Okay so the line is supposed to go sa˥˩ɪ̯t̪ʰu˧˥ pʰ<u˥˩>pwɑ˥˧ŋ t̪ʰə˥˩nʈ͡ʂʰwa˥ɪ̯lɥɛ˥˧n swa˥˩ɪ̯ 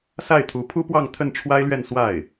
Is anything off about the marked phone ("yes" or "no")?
yes